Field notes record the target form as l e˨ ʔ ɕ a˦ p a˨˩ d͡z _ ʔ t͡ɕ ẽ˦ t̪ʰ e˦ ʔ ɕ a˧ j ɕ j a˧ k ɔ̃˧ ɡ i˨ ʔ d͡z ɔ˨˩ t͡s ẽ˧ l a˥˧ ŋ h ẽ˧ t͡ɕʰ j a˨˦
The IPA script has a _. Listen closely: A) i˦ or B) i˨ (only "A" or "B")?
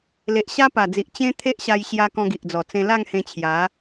B